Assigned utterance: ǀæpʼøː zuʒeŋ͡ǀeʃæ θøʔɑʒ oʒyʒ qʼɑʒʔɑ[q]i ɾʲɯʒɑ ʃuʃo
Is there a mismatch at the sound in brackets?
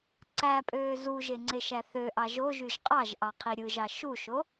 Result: yes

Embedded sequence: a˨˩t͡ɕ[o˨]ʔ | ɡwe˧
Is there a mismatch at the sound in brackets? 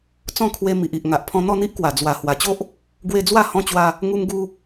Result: yes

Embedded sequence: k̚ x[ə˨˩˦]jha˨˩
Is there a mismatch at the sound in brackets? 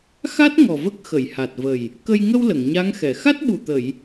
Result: yes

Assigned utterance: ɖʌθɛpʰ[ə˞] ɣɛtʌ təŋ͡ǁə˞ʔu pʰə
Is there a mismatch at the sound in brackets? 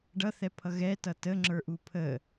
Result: yes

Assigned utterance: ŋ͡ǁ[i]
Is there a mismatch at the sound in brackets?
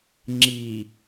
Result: no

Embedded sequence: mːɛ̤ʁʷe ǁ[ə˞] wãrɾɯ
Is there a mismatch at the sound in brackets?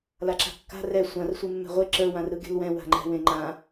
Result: no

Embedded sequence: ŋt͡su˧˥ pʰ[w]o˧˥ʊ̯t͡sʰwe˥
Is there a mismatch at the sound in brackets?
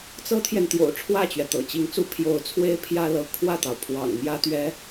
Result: yes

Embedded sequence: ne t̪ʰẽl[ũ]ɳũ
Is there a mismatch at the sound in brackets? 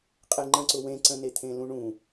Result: no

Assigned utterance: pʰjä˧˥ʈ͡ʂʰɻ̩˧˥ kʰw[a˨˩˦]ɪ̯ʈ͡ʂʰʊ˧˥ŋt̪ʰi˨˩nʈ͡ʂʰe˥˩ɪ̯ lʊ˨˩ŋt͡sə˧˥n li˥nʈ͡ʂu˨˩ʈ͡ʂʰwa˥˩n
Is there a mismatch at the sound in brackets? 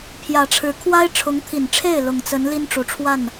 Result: yes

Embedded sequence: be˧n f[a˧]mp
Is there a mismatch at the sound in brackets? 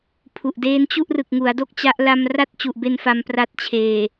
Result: no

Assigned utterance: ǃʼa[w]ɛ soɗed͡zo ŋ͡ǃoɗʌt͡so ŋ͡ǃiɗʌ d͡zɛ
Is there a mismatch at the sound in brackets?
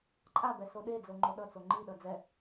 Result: yes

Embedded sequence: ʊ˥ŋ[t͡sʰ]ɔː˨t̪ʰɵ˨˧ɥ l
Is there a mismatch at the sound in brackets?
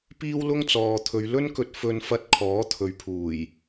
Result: yes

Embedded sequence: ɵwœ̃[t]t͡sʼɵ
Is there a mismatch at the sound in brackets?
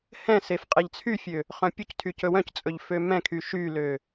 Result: yes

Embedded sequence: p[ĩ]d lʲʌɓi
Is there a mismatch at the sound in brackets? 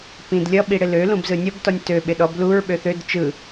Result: no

